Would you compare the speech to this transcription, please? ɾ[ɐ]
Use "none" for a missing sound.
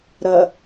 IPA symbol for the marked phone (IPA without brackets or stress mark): ɐ